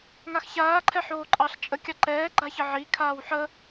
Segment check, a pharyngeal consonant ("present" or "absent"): present